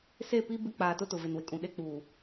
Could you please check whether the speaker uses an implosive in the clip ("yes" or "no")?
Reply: yes